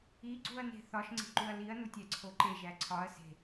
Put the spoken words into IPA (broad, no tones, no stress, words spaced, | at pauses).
iɡ͡ǀuɐ̯ne̤ θɒʃŋ͡ǀe̤ǃuɐ̯ liɐ̯nutʲæǀʰo ǃeʒæ ǀʰɒɐ̯ se̤